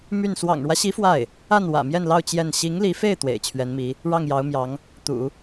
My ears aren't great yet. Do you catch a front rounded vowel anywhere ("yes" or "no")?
yes